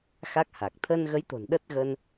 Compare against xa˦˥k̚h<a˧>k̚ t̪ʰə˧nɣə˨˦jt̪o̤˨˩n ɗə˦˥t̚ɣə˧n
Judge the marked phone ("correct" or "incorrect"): incorrect